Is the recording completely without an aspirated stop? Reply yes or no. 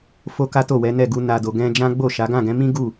yes